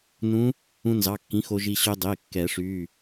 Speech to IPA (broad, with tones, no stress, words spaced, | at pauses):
nũ˧˥ | ũ˧nzɑ˩˧˩kːĩ˩˥ xo˧ʒi˧ ɕø˧dˤe˩˧˩ kːɛ˨˩˦ʂy˩˧˩